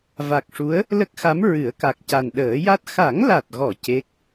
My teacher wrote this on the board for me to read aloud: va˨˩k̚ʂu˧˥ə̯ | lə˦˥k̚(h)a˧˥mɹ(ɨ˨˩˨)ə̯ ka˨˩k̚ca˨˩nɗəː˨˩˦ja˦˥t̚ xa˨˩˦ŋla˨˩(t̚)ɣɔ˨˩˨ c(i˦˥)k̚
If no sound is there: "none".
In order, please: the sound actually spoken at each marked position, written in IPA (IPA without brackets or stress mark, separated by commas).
x, ɨ˨˩˦, t̚, e˦˥